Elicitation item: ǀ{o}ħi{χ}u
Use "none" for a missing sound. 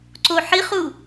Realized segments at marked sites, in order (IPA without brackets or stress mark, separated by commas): o, χ